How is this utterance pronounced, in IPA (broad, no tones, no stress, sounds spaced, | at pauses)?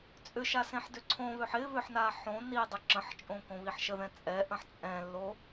t͡sʼ ʏ ʃ a s ẽ ħ d ʏ ǀʰ õ β ø ħ ɪ β ʏ ħ n a ħ õ n i dˤ ʏ ǁ ə̃ ħ t͡ʃʼ õ k õ β i ħ ʃ ə ð ɛ̃ t͡sʼ ɛ ʔ ə̃ ħ t͡sʼ ɛ̃ lː o